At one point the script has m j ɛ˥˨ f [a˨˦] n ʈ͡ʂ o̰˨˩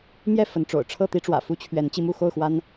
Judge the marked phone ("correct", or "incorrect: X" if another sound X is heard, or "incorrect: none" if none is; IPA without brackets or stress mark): incorrect: ə˨˦